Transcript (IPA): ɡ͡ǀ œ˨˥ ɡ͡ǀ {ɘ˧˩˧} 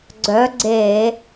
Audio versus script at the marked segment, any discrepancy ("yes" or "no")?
yes